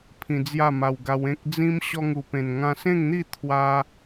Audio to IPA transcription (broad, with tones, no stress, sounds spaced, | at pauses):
pʰ ĩ˧ d͡z j a˥˧ m a˧ w ɡ a˧ w ẽ˦ k̚ d͡z ĩ˦ m ɕ ɔ˧ ŋ u˨˩ p ẽ˨˩ n ŋ ã˧ s ẽ˥˧ ŋ n̪ i˥˧ t̪ʰ w a˦